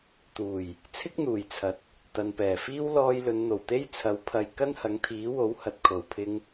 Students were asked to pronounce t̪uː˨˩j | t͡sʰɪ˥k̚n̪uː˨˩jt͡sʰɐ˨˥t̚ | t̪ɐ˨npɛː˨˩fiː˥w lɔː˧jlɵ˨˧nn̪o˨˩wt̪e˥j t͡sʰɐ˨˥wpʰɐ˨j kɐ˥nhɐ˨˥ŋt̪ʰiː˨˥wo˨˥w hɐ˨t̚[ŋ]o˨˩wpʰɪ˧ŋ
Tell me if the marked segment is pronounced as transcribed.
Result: no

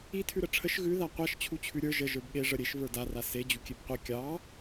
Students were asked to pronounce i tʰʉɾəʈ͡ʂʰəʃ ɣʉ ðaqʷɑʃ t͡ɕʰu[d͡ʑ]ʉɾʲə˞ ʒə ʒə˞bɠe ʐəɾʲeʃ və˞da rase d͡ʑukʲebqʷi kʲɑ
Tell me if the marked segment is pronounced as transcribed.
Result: no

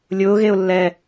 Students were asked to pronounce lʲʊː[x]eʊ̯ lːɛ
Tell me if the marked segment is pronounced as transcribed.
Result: no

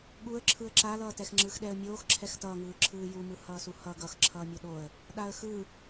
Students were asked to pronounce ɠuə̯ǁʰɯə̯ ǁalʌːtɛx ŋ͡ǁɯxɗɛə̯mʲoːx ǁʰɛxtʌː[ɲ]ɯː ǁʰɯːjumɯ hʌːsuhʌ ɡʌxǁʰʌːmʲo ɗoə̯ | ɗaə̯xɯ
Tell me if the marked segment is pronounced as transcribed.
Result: no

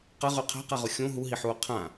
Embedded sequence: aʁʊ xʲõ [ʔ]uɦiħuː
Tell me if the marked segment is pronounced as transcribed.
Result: no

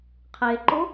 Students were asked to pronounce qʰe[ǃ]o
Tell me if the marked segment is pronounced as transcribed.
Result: yes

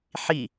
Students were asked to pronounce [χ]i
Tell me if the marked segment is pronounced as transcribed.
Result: no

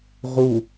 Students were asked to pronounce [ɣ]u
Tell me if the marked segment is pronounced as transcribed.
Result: no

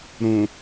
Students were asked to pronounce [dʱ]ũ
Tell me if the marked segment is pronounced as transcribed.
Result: no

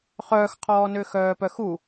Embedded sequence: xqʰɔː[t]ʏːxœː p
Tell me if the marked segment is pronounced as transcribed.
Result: no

